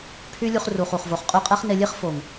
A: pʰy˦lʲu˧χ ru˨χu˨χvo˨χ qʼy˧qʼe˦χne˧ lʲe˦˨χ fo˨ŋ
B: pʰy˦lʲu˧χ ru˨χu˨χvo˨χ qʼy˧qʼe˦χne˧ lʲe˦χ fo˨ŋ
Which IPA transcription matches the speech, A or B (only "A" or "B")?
B